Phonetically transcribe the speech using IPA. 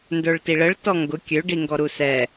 ndə˞ɭtiɭəɭ tɔŋɡʊ kʲø ɖiŋɡɔɾusɛ

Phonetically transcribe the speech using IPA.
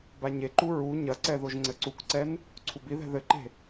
baɲeǃu ɹu ɲɐǀɛ ðoʒŋ͡ǀɘǀukǀɛn | ǀʰubiðɛ̤ ðɘǃe̤

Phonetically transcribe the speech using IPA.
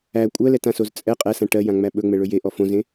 æ kʷʼɜlɛtãsoz t͡sʼɛ qʼɛsã ʈɜjãŋ͡mæ ɓɵŋ͡mɛɭɵ jeʔɔ fõzẽ

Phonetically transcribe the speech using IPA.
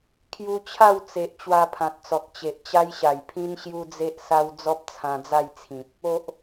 kʰju˧t͡ɕʰa˥˧wt͡se˨ʔ t͡ɕwa˧pʰã˨t̚t͡sɔ˨k̚ t͡ɕe˨ʔt͡ɕa˦jɕa˨˩j pʰĩ˦nɕju˦d͡ze˦ʔsa˦w d͡zɔ˦p̚t͡sʰã˧d͡za˥˧jt͡sʰĩ˨p̚ | o˨ʔ

